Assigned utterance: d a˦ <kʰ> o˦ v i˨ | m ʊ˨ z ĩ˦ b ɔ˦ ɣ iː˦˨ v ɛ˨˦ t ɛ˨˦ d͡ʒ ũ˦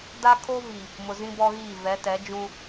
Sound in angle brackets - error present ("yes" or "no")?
no